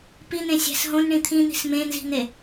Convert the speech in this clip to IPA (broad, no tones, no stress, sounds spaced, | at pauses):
p i n̪ ẽ sʲ æ̤ s ɦ õ n ɳ ĩ t̪ʰ ĩ n̪ i̤ s m ẽ n z i̤ n̪ e